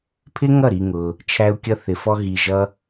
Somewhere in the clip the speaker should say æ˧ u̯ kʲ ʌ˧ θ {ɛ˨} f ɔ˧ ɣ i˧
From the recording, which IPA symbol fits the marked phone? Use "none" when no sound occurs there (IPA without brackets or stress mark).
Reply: ɪ˨